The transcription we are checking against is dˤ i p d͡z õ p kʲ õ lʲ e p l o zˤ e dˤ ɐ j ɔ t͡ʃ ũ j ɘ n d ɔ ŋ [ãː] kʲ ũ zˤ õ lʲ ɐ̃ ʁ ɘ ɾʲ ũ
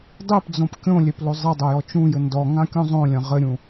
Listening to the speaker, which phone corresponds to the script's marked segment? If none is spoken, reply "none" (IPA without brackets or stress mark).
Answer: ã